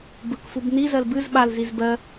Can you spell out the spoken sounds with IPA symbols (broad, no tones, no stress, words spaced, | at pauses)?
bɯkfub nizɜl bɨz ɓalziz bɜ